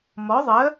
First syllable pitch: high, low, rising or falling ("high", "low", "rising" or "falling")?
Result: rising